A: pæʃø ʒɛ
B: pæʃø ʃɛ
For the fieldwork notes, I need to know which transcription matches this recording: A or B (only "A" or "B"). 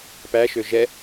A